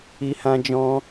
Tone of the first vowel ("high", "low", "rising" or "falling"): high